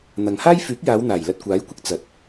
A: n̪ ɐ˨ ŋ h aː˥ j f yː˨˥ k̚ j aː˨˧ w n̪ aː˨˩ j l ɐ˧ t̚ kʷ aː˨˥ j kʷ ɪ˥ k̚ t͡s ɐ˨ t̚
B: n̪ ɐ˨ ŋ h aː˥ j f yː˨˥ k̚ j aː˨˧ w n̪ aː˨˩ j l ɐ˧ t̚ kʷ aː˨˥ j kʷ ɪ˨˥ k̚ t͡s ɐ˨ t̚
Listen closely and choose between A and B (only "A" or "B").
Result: A